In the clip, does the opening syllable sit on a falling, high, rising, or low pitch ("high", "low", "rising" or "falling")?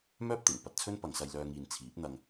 high